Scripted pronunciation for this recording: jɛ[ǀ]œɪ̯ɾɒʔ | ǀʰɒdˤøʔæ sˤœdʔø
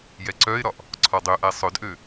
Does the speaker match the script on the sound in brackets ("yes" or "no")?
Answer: yes